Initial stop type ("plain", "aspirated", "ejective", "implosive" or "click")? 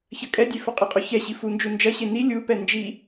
ejective